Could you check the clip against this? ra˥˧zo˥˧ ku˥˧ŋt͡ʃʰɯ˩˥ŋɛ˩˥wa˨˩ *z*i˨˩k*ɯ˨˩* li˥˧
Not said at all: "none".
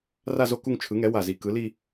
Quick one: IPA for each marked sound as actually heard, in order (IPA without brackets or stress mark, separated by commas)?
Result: z, ɯ˩˥